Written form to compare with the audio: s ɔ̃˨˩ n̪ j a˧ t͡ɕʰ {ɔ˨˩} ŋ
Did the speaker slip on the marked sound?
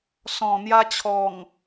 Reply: no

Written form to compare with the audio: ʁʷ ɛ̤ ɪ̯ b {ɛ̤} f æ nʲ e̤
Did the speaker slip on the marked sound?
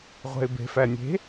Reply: yes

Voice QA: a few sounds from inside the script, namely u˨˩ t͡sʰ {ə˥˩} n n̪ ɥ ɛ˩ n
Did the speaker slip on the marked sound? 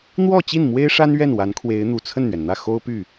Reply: no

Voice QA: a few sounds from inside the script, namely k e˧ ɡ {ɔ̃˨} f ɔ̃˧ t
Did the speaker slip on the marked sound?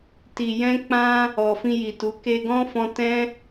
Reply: yes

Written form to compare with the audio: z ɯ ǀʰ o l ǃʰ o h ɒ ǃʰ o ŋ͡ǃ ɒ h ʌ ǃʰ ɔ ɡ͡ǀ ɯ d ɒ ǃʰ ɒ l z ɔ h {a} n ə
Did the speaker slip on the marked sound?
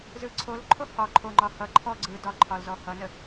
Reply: yes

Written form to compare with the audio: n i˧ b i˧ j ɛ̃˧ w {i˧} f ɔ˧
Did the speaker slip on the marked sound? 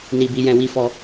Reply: yes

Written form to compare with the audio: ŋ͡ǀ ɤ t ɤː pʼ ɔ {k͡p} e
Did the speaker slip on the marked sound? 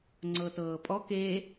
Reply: yes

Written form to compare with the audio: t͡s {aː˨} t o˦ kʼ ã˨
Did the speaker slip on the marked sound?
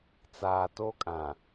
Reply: no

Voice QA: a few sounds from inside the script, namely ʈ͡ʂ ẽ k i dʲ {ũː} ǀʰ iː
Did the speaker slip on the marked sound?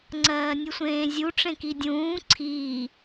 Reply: no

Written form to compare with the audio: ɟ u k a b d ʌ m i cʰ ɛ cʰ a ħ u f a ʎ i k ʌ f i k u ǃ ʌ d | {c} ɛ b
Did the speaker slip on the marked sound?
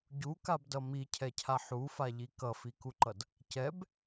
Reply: no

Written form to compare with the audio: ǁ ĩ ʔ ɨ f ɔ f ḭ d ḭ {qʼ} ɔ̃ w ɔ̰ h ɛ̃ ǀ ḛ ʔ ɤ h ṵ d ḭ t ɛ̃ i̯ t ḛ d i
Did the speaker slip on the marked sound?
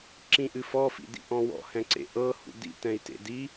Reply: yes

